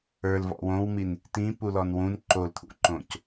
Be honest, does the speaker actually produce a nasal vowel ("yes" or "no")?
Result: yes